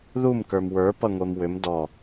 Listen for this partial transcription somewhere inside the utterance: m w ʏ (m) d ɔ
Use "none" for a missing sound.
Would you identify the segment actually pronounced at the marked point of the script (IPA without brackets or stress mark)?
m